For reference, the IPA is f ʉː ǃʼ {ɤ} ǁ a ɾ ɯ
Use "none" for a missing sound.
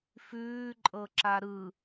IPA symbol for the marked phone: ɤ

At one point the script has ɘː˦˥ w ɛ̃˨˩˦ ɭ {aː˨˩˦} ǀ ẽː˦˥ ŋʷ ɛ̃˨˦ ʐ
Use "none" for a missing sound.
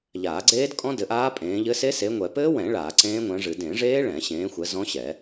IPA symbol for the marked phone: aː˨˩˦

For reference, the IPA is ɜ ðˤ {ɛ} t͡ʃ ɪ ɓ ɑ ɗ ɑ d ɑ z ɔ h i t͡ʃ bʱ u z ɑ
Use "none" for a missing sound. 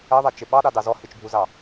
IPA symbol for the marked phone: ɛ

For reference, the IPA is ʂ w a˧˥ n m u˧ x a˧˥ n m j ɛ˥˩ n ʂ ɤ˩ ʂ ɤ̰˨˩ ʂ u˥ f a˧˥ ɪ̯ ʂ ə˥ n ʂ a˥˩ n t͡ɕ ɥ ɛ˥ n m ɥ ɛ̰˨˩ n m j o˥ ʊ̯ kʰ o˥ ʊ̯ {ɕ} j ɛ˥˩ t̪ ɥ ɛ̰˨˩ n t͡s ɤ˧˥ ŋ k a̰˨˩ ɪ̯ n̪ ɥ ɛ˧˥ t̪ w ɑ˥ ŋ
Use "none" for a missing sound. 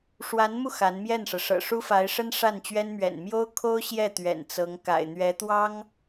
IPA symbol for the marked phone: ɕ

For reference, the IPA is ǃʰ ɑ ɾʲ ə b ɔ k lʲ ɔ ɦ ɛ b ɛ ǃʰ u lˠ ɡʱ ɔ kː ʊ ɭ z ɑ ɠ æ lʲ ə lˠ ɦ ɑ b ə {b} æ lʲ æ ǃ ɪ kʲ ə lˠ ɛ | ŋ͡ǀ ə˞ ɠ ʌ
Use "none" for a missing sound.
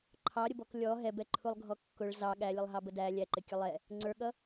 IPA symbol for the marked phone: d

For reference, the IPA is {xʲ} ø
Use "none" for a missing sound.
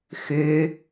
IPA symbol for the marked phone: x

